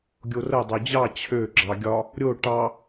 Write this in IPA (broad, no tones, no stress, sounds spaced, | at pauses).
ɡʲ o r ə dˤ ø d͡ʑ ɑ t͡ɕʰ ø ɡ͡ǁ ɑ ɡʲ ɒ | ɾʲ o ʈ ɑ